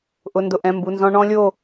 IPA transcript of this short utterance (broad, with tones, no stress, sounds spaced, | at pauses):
ʔ ʊ˧˥˧ n d ʊ˥˧ ʔ ɛ̃˧˥˧ m b u˧˥˧ n z ɔ̃˥ ɳ ɔ̃˥ lʲ o˥˧